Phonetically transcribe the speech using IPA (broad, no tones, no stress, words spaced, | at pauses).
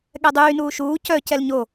ɠɛdˤyː nuːʃuː cœ cɛlɲo